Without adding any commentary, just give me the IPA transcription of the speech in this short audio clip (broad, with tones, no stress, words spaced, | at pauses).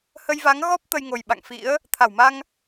hə˧jva˨˦ŋ ɣɔ˦˥p̚ t̪ə˧jŋo˨˩j ɓa̰˧˨ŋfḭ˧˥ə̯ | t̪ʰa˧˩wma˧ŋ